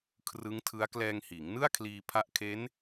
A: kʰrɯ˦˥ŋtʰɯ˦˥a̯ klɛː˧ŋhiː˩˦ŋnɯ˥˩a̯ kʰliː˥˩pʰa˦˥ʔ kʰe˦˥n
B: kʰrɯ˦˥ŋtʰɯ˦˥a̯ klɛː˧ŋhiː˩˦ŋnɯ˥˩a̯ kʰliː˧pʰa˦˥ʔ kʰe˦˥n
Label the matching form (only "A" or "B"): B